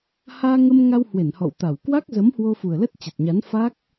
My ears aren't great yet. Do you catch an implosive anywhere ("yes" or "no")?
no